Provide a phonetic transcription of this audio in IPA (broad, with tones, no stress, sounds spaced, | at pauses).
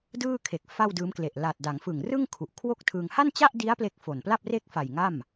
d ɯː˥˩ kʰ e˨˩ k̚ f a˥˩ w d ɯː˦˥ m k l e˨˩ ʔ l a˨˩ t̚ d a˩˦ ŋ f ɯ˨˩ ŋ r ɯ˥˩ ŋ kʰ u˨˩ ʔ kʰ w o˥˩ k̚ tʰ ɯ˧ ŋ h a˥˩ n t͡ɕ a˥˩ ʔ d i˦˥ a̯ p l e˥˩ k̚ f o˨˩ n p l a˥˩ p̚ r e˥˩ k̚ f a˨˩ j ŋ a˥˩ m